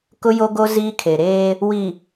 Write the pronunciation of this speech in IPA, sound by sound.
kʊ˦jo˦ɡo˦ ziː˦kʰe˨ɾeː˦ | wi˨

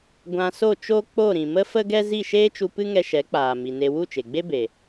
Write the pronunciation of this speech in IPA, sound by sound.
ɡʷã˧so˦˨t͡ʃo˦ k͡po˦˨ɾĩ˨mə˦ fə˦ɡɛ˦ zi˦˨ʃeː˦t͡ʃu˧ pɨ˦ŋɛ˧ʃɛ˨˦k͡paː˨ mi˨ne˧ wu˦˨t͡ʃe˨ɡ͡be˦be˨

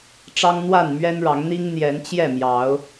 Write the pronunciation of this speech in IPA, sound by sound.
ʈ͡ʂɑ˦ŋn̪wa˥˨n mɥɛ˦nɻɑ˨˦ŋn̪i˦ŋ n̪jɛ˨˦nt͡ɕjɛ˥˨mjɑ˨˦ʊ̯

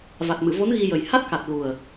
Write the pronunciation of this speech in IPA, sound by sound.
va˨˩t̚mɨ˨˩˨vo˧˥n ɣi˧jə˨˩j ha˦˥t̚ka˨˩t̚ lu˨˩ə̯

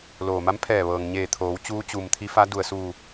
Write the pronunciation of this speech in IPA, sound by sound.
loː˩ma˧˥mpʰɛː˧˩ ʋɤː˩ŋɲeː˧˩t̪ʰoː˩˧w t͡ɕuː˧˥t͡ɕuː˩mt̪ʰi˧˥fa˧˥ du˩ə̯suː˧˩

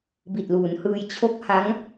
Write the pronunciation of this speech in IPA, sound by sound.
bi˨˩t̚luː˩˦nhɯː˧j t͡ɕʰo˦˥k̚ha˦˥ŋ

